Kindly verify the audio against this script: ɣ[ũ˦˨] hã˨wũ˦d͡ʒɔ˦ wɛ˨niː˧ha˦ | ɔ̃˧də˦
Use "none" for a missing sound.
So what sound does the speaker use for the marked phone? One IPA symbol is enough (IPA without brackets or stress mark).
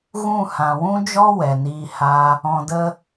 ũ˦˨